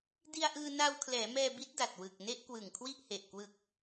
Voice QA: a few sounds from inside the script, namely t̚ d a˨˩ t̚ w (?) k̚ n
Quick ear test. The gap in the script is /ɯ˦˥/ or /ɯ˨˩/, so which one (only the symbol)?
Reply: ɯ˨˩